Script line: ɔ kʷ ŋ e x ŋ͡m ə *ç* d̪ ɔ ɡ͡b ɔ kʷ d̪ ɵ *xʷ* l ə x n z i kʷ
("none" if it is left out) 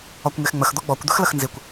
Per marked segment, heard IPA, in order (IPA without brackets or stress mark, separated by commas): x, x